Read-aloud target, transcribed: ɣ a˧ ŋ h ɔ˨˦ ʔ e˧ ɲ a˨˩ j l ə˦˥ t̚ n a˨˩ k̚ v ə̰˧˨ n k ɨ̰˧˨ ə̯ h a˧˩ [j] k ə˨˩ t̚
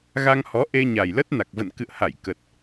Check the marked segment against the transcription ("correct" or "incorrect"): correct